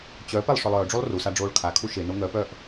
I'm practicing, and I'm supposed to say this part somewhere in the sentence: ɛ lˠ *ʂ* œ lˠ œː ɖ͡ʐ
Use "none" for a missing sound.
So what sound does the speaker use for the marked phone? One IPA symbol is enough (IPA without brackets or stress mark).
ʂ